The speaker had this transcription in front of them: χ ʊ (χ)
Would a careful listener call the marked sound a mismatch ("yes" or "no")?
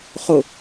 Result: yes